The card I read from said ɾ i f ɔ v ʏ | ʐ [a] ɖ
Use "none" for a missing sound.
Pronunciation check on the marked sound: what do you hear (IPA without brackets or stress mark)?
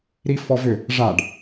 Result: a